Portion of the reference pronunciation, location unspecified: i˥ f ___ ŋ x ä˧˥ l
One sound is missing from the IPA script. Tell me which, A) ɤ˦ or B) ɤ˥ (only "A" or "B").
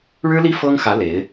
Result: B